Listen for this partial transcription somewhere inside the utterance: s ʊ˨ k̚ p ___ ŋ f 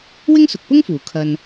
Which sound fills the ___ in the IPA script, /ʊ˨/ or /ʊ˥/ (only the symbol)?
ʊ˥